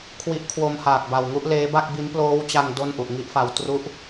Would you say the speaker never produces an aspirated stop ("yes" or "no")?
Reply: no